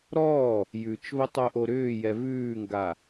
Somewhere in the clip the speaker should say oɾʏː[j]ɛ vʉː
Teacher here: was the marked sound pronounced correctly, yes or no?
yes